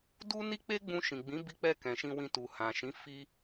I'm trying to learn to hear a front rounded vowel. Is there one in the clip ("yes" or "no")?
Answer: no